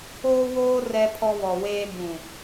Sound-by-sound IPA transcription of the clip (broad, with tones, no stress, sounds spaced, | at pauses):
oː˦ w oː˦ r ɛ˦ pʰ ɔ˦ β ɔ˨ w eː˦ b ũ˨